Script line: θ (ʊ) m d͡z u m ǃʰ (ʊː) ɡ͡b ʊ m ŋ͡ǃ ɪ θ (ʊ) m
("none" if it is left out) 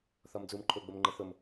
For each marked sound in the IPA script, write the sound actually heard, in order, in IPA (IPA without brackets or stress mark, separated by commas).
ɔ, ʊː, ʊ